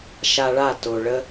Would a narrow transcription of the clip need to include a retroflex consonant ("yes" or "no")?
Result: yes